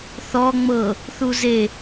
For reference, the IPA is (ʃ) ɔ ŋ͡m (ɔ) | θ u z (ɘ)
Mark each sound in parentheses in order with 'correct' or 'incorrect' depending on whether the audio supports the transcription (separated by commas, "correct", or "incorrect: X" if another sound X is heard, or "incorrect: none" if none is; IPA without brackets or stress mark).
incorrect: θ, incorrect: ɤ, incorrect: e